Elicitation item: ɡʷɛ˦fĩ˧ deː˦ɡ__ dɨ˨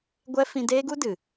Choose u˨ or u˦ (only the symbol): u˦